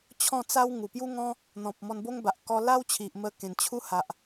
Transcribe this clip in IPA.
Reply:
t͡ɕʰ ɔ̃˥˧ t͡s a˦ w ŋ u˨˩ p j u˦ ŋ ɔ̃˦ | n̪ ɔ̃˨ p̚ m ɔ˧ n b o˦ ŋ b a˨ ʔ k ɔ˧ l a˦ w t͡ɕʰ i˨ ʔ m ə˧ k ẽ˨˩ n t͡ɕʰ u˦ h a˨ ʔ

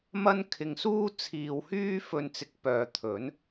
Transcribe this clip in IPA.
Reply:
m ɐ˥ n kʰ ɪ˧ ŋ s uː˥ t͡sʰ iː˨ w h yː˥ f ɵ˧ n t͡s ɪ˧ k̚ p œː˨ t̪ʰ ɵ˨˥ n

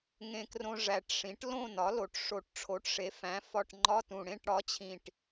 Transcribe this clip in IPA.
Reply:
ŋ ẽ˧ k r õ˧ ʐ æ˨˩ ʈ ʂ ĩ˩˥ ʈ l õ˥˨ n ɒ˩˥ l o˨˩ ʈ ʂ o˨˩ ʈ ʈ͡ʂʰ o˩˥ ʈ ʂ e˩˥ f æ̃˩˥ f ɒ˧˥˧ ʈ ŋ͡ǃ ɒ˧˥˧ t ũ˨˩ ɽ ẽ˥˨ ʈ ɽ ɒ˩˥ t͡ɕʰ ĩ˨˩ ʈ

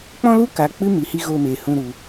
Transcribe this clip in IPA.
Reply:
k͡p ɔ̃˦ l u˦ k a˨ k͡p ɨ˦ m i˨ h i˧ ɣ oː˧ m eː˨ h ũ˧ ɾ u˧

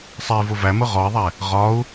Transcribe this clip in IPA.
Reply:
sˤ ɛ i̯ v ʊ v æ m ʊ ʁ ɔ i̯ ðˤ ɛ | ʁ ɒ u̯

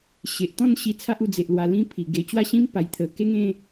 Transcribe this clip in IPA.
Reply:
ɕ e˨ ʔ t̪ ɔ̃˥˧ n ɕ i˧ t͡sʰ a˦ ʔ u˧ d͡z e˨ ʔ l w a˧ l ĩ˦ pʰ i˨˩ ɡ e˧ t͡ɕ w a˥˧ ɕ ĩ˦ m p a˨˩ j t̪ʰ ə˨˩ k e˦ ŋ ẽ˦

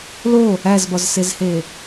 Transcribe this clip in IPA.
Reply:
l o | æ z b ɒ z s e z h e

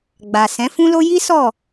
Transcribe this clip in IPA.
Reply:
ɡ͡b a˨ s ɛ̃˨˦ f ũ˦ l o˦ j i˦ s ɔ˦˨

